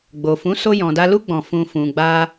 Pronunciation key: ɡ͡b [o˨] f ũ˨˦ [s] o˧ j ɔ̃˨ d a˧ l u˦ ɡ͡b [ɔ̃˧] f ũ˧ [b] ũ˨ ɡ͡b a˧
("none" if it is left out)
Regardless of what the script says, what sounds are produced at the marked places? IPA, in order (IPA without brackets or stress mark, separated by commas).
o˨, s, ɔ̃˧, f